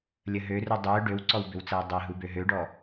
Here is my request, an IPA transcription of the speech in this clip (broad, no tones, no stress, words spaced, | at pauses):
lʲəɦøru dˤø ɖøwǀɔwbʏwt͡sɐw dˤɛɦubø ɦøɖɔ